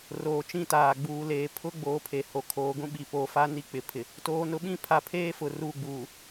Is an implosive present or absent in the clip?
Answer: present